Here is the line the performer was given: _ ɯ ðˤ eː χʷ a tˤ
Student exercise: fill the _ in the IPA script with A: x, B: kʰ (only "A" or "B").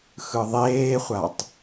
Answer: A